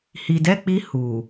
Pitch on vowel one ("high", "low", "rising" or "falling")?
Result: low